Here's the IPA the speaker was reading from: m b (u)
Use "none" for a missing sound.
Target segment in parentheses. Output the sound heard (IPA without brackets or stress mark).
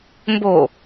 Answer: o